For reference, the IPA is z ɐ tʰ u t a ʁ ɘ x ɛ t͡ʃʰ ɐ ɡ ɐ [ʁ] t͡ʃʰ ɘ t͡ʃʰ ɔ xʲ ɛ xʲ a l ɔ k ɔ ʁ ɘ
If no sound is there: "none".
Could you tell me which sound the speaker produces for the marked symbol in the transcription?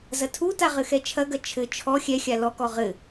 none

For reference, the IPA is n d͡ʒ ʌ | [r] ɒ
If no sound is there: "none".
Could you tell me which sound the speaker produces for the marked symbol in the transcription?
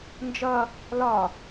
l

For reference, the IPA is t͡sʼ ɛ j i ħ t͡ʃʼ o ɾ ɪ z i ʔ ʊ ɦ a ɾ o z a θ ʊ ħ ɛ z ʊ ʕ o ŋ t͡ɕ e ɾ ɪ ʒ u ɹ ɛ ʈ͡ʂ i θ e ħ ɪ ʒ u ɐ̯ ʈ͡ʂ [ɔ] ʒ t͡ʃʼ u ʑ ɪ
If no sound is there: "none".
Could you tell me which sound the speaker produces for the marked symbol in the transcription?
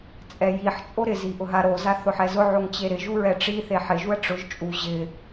ʊ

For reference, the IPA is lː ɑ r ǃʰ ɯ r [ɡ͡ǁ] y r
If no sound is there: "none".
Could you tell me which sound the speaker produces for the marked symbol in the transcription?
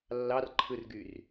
ɡ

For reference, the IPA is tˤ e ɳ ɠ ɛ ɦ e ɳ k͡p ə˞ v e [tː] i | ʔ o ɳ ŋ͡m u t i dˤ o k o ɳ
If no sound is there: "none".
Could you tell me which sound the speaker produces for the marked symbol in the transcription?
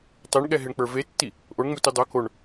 tː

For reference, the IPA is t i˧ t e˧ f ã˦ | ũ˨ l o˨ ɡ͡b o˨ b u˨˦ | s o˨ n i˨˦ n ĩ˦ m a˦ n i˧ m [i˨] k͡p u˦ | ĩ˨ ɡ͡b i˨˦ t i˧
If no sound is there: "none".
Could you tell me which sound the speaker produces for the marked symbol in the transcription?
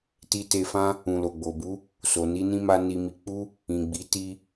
i˧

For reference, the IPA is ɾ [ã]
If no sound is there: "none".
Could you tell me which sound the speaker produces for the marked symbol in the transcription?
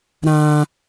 ã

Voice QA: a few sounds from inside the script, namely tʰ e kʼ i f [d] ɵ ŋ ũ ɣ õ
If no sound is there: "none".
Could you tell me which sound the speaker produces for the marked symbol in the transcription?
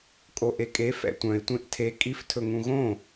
tʰ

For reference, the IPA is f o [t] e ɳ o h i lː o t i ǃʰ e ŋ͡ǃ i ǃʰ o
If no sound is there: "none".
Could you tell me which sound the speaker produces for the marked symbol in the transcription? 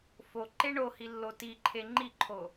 ǃ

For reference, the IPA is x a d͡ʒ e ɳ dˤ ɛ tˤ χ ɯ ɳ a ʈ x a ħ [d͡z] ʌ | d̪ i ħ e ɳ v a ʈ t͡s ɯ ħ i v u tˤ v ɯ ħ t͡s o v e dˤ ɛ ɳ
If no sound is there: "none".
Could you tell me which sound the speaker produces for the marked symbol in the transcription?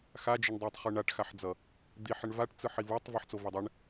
d͡z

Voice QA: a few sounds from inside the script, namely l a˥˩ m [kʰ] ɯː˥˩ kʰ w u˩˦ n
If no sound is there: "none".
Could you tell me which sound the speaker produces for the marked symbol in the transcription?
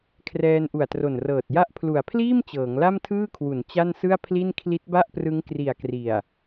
tʰ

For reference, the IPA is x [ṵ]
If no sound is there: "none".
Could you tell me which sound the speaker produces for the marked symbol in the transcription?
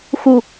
u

